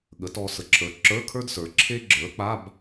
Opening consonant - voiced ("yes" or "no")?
yes